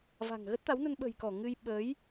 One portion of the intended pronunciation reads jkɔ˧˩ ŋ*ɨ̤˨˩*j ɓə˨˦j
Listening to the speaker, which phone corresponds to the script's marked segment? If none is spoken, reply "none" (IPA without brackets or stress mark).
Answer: ɨ˧